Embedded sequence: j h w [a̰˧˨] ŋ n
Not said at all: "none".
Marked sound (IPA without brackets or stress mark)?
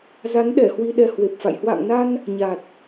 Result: a̰˧˨